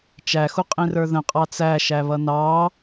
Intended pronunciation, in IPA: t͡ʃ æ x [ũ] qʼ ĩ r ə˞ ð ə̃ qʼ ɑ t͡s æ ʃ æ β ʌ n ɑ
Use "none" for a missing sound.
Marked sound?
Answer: u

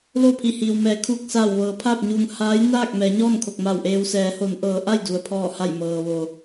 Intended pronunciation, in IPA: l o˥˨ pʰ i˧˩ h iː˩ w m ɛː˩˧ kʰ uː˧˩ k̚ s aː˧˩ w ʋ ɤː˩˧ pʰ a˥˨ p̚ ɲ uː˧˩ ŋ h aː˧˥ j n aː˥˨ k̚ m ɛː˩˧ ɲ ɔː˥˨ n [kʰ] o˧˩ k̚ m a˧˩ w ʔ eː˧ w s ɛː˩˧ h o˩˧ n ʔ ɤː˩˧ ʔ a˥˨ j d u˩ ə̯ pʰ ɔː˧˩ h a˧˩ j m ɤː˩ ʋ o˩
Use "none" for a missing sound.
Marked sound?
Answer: kʰ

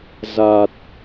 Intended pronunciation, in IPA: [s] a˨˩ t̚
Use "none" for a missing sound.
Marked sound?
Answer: z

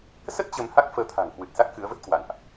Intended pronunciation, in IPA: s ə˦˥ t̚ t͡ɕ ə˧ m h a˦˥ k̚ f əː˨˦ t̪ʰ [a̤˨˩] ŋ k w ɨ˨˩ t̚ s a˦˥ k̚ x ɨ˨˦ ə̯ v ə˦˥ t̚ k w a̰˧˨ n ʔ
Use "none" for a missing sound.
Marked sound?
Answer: a̤˨˩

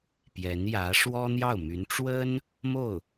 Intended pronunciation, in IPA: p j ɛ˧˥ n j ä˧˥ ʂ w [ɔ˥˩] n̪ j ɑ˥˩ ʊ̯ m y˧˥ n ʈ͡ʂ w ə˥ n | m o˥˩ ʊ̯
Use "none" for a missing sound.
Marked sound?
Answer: ɔ˥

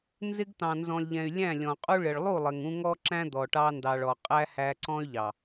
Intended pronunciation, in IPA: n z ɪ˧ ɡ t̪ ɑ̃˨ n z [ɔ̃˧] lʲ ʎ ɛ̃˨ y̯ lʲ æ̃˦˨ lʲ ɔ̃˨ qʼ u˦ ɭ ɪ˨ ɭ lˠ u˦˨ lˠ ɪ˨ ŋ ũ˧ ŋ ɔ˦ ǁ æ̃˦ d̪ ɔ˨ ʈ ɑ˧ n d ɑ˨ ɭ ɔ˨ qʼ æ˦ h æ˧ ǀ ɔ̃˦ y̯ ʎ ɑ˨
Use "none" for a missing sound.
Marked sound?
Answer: ɔ̃˨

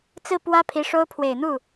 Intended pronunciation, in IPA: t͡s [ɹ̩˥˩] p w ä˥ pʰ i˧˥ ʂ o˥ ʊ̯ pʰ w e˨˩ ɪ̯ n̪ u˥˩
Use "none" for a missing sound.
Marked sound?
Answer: ɹ̩˥˩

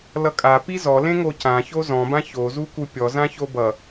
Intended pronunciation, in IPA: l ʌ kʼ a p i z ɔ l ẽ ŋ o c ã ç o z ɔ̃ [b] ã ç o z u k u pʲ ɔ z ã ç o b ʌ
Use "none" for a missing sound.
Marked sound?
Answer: b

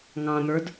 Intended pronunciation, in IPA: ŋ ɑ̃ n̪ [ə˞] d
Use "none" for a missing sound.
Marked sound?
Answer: ə˞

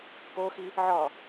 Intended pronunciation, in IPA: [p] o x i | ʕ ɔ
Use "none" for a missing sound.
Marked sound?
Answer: p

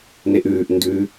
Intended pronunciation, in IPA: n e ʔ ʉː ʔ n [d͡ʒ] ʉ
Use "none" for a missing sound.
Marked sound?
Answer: d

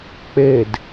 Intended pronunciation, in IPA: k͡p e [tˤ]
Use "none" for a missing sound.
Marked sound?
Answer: d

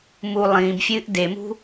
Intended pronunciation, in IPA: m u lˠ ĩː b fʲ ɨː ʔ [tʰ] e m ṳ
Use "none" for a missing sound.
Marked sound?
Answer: d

